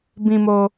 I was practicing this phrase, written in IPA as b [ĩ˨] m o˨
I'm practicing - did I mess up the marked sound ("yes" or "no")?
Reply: no